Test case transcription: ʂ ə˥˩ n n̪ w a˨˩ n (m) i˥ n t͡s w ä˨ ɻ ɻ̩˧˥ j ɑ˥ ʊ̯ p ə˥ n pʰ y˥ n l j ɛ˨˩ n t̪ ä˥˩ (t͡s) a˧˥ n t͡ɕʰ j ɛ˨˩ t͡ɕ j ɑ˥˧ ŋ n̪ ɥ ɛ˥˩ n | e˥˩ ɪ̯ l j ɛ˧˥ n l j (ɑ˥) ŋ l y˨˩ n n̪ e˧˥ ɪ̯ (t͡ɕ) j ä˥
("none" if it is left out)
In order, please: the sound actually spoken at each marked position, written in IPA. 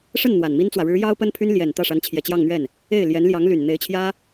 m, ʂ, ɑ˧˥, t͡ɕʰ

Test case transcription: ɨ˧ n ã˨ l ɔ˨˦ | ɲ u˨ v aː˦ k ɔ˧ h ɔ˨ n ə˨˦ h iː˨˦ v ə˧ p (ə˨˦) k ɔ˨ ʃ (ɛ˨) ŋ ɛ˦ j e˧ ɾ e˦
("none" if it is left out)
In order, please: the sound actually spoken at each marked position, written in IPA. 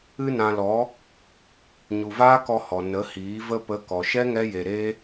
ə˨˦, ɛ˦

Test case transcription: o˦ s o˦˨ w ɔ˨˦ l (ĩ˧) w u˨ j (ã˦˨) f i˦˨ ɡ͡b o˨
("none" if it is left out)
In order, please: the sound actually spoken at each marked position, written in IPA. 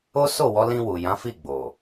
ĩ˧, ã˨˦

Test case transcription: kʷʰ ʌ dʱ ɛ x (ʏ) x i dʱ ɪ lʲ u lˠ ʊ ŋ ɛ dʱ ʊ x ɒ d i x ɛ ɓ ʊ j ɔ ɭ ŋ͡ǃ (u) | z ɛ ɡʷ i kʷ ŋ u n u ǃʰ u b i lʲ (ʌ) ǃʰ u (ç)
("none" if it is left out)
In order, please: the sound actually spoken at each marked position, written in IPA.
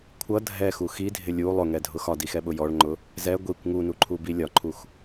u, ʊ, ɒ, x

